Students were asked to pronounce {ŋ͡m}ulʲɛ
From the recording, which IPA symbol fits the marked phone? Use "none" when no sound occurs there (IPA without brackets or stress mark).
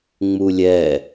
ŋ͡m